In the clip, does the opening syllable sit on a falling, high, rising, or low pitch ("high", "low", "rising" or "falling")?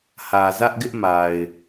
low